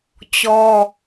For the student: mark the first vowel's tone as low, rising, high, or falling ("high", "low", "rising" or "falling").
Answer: high